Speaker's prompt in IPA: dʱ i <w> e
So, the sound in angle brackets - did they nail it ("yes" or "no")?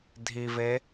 no